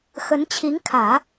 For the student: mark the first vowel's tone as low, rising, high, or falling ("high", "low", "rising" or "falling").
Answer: rising